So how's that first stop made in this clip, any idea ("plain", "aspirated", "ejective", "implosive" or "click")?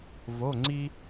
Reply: click